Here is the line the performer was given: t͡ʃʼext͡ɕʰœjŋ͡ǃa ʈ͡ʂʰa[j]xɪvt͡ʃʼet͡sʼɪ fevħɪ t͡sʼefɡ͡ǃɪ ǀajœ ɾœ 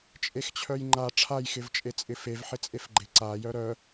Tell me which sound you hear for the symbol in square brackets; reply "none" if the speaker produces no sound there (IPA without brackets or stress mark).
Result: j